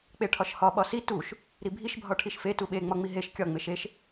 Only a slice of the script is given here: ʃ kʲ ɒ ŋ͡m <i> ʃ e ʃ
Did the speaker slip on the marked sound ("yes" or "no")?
yes